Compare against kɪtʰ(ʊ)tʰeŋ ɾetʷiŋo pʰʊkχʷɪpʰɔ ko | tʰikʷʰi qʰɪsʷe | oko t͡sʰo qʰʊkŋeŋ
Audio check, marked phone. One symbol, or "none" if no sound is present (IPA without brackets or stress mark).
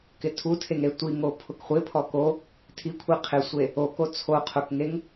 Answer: u